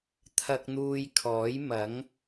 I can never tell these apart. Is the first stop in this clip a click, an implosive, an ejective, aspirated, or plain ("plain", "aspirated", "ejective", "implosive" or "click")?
aspirated